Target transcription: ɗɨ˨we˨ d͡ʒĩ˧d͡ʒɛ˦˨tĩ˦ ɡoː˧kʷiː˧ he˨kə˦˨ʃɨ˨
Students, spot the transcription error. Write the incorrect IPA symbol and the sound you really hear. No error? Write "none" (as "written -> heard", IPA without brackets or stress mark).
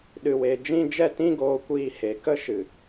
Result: ə˦˨ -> ə˦